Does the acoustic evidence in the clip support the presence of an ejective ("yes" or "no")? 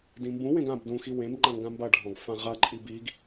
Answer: yes